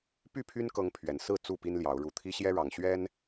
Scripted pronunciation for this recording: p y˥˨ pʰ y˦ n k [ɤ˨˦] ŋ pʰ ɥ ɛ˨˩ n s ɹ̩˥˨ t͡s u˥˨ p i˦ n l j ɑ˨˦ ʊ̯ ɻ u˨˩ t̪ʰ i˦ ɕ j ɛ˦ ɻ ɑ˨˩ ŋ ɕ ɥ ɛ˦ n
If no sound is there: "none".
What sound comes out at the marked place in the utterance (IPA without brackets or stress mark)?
ɤ˨˦